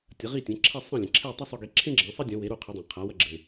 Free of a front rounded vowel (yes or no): yes